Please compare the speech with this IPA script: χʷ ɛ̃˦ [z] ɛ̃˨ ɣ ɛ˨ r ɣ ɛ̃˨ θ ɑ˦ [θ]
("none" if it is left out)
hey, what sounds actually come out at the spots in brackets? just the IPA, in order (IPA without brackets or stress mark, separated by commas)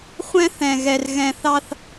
θ, θ